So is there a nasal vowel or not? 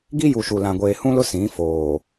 yes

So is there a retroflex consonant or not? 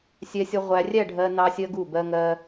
yes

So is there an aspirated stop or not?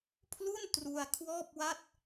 yes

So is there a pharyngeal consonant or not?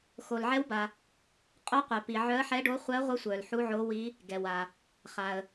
yes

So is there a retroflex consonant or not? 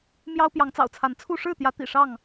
yes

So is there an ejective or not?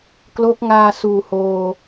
no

